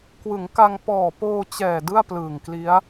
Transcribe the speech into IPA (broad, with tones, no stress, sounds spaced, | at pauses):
k w ɯ˩˦ ŋ k a˧ ŋ p ɔː˨˩ p oː˧ t͡ɕ ɛː˨˩ d ɯ˥˩ a̯ p l ɯː˨˩ ŋ k l i˦˥ a̯